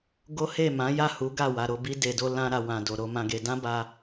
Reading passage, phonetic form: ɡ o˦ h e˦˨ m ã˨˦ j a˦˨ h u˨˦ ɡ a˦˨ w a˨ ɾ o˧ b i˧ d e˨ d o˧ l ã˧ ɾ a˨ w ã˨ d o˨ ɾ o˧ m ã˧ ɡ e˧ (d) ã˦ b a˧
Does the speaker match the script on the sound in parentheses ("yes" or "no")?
yes